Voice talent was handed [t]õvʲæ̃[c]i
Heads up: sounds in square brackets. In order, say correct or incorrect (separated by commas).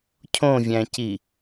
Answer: incorrect, correct